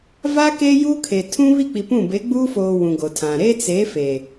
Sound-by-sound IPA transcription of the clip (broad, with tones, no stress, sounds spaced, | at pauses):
v a˦ k eː˦ j uː˦ kʰ e˨ tʰ ũ˦ β i˦˨ k͡p i˨ p ũ˦˨ b e˨˦ ɡ͡b uː˦ f oː˨ w ũ˨ ɡ o˨ tʰ ã˨ ɾ e˦ t͡s e˨˦ f eː˨